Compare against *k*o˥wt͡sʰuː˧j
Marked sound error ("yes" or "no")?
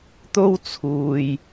yes